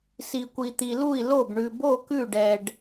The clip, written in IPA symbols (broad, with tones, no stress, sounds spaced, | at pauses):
s i˧ kʷ i˧ t̪ i˧ l u˥˨ i̯ l o˥˨ b ɳ ʉ˧ b o˥˨ k ʉ˥˨ ɖ ɛ˧ ɖ